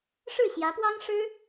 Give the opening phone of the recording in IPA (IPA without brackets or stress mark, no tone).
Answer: ʂ